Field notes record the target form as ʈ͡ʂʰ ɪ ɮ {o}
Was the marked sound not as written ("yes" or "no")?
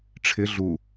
yes